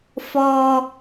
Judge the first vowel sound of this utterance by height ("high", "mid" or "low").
mid